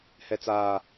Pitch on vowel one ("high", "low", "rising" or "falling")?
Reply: low